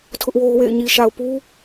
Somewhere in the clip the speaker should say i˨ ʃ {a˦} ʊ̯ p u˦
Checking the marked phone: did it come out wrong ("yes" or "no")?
yes